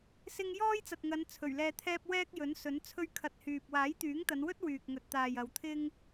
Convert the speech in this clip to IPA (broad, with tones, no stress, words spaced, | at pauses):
sɪ˧ŋ jɔː˥jt͡sɐ˨t̚ŋɐ˨˧n t͡sʰɵ˨˩ɥlɛː˧t̪ʰɛː˥p̚ wɛː˥k̚ jɵ˨˥nsɵ˨˥n t͡sʰɵ˥ɥkʰɐ˧t̚hyː˨p̚ waː˨˥jt̪yː˨˥ŋt̪ɐ˨˧nwɵ˥t̚ wyː˨k̚ŋɵ˨t̚t̪aː˨j ɐ˨˧wt̪ʰɪ˥ŋ